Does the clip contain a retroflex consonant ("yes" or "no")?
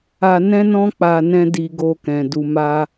no